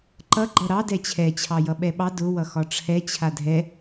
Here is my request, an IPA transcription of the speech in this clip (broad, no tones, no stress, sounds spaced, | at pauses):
ǃ ʌ ɡ͡ǃ ʌ ɾ ɑ d ɛ t͡ɕʰ ɛ t͡ɕʰ ɑ j ʌ ɓ ɛ ɓ ɑ d ʊ w ʌ x ɒ ʈ͡ʂʰ ɛ t͡ɕʰ a dʱ ɛ